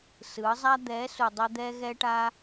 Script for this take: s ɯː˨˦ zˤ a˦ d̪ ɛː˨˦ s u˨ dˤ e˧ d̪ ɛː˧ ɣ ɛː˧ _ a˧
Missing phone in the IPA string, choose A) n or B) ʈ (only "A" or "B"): B